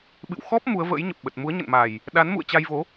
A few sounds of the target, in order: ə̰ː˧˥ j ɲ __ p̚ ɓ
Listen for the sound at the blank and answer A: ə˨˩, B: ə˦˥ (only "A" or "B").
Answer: A